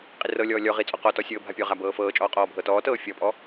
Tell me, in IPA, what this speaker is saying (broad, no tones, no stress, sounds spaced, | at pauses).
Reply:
qʼ i r ɤ lʲ ɔː lʲ ɔ ʁ i t͡sʼ ɔ q ɔ t ɔ sʲ ɤː bʱ a pʲ ɔ ʁ a b ɤː f ɤː t͡ʃʼ ɔː qʼ ɔː bʱ ɤ t ɔː t ɤː fʲ ɔ pʼ ɔ